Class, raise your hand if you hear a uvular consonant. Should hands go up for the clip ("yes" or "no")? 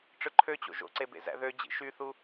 no